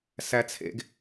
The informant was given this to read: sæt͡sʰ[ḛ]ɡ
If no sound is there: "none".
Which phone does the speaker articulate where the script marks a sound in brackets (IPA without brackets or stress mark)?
ḛ